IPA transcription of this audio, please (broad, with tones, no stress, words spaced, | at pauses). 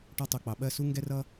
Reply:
ʈɒ˥tˤʊ˧˥˧k͡pɑ˧ ɓɜ˥˧su˥ŋɡɛ˥rʌ˥